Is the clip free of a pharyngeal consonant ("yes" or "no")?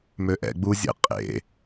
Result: yes